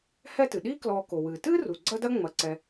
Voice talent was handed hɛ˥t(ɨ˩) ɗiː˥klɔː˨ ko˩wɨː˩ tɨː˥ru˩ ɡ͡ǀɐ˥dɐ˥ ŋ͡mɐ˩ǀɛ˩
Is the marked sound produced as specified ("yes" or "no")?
yes